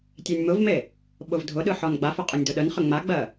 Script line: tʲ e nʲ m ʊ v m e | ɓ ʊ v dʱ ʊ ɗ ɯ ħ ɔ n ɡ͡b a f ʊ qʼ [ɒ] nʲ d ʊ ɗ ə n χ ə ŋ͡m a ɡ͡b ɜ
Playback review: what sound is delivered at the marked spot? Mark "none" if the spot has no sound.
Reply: ɒ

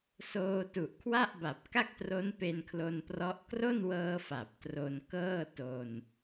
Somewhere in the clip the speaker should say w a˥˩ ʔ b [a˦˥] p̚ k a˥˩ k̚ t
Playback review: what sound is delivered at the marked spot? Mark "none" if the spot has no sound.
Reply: a˨˩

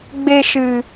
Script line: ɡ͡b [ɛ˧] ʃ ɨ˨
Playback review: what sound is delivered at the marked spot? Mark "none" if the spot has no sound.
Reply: e˧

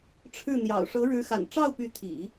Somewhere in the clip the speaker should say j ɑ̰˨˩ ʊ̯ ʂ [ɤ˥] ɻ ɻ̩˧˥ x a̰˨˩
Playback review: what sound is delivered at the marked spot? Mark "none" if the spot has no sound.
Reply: ɤ˧˥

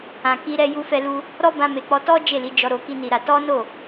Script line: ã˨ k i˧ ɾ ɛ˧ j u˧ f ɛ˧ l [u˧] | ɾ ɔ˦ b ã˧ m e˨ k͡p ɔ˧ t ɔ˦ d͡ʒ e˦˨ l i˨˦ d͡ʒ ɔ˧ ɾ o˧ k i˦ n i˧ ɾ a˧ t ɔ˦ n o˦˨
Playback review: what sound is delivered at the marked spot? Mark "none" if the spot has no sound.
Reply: u˧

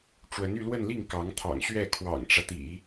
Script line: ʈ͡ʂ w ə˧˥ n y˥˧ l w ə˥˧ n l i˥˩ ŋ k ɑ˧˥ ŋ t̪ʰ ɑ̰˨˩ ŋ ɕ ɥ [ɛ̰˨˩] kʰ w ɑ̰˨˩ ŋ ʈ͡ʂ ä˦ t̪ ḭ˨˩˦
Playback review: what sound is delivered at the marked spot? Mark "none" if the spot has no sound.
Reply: ɛ˥˩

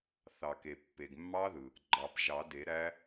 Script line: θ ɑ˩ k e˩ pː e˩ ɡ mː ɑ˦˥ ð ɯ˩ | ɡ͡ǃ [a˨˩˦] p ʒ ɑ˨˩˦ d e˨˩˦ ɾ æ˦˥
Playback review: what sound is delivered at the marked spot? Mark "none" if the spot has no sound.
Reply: ɑ˨˩˦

